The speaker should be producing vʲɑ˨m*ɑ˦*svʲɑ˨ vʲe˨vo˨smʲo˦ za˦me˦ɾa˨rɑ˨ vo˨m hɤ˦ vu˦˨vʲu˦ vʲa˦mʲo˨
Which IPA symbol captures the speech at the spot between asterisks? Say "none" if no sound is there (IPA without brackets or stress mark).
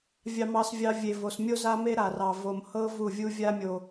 ɑ˨